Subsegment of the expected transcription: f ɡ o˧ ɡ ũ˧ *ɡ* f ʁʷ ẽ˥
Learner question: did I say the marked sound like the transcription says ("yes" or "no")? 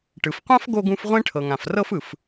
no